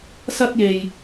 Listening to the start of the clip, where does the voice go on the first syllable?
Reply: high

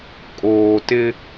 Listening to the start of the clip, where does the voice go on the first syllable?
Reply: low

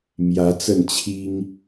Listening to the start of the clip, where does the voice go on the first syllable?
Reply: rising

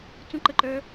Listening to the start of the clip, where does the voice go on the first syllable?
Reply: high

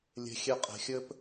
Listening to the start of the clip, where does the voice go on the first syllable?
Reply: low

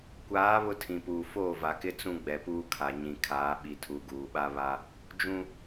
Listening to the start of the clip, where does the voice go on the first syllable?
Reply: rising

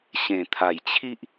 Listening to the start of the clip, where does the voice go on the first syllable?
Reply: low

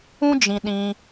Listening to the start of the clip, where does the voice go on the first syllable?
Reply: high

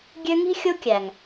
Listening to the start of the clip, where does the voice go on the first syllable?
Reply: high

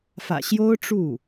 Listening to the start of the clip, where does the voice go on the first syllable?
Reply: low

